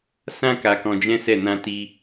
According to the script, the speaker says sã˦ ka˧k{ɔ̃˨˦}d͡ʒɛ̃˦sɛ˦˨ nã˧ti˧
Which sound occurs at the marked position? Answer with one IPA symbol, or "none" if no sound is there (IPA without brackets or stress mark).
ɔ̃˧